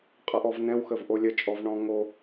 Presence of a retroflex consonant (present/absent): present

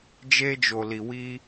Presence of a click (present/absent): absent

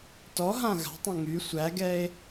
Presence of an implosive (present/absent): absent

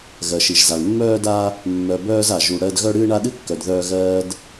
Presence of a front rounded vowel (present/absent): present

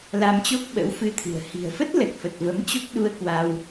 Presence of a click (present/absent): absent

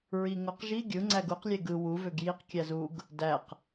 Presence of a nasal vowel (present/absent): absent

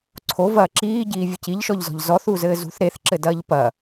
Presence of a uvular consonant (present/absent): absent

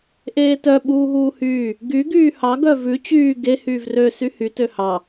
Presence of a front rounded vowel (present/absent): present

